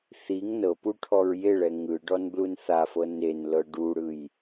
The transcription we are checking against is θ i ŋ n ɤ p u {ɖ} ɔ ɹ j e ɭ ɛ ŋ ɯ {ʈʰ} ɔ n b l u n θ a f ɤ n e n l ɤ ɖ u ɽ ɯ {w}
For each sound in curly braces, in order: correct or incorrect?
incorrect, incorrect, incorrect

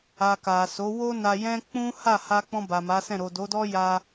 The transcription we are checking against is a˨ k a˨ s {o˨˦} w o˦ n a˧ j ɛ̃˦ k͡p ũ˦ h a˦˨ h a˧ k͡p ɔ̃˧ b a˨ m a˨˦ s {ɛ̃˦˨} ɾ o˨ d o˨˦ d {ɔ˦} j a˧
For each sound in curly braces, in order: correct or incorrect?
correct, correct, correct

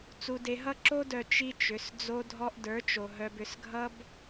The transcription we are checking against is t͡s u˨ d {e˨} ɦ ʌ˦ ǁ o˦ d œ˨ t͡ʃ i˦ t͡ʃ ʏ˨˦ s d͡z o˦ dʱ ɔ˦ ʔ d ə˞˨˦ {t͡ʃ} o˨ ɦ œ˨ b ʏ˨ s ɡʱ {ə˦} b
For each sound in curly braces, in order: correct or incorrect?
correct, correct, incorrect

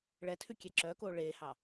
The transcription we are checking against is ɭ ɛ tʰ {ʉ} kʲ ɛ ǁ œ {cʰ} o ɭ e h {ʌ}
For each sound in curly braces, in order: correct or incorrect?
correct, incorrect, incorrect

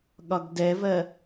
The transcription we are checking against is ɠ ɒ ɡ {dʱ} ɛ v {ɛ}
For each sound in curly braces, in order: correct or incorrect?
incorrect, incorrect

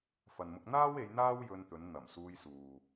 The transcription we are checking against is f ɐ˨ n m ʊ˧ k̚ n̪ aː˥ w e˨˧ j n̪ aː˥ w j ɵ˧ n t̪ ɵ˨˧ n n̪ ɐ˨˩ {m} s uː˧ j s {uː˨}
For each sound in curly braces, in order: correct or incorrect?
correct, correct

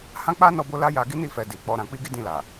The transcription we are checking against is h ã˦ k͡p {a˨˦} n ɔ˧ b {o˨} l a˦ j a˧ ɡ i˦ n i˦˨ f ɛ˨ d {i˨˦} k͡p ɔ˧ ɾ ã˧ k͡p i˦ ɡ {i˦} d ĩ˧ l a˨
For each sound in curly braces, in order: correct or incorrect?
incorrect, incorrect, incorrect, correct

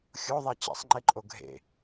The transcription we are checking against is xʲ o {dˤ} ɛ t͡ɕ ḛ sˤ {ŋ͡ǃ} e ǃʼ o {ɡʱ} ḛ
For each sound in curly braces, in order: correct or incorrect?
incorrect, correct, correct

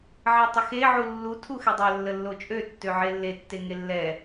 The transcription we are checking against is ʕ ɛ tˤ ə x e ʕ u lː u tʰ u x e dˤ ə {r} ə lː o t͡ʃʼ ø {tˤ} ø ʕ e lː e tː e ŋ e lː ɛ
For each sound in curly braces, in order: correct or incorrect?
incorrect, incorrect

